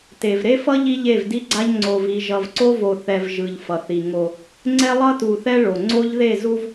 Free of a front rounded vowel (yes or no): yes